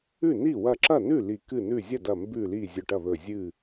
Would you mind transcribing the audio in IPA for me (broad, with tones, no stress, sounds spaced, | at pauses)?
ʉ˥˩ n i˥˩ w ɐ˧˩ ǁ ɐ˥˩ n ʉ˥˩ l i˧˩ k ɨ˥˩ n ʉ˥˩ zʲ ɐ˥˩ d ɐ˧˩ m b ʉ˧˩ l i˧˩ zʲ ɵ˧˩ ʈ ɐ˥˩ β ɵ˧˩ zʲ ɨ˥˩